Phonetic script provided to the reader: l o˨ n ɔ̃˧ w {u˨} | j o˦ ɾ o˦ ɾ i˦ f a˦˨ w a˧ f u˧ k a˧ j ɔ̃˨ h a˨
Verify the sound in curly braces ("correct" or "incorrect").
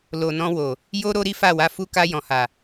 incorrect